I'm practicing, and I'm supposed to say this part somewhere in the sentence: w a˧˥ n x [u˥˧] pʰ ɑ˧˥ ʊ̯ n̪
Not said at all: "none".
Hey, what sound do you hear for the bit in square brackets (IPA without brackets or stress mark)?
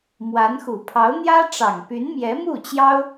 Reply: u˨˩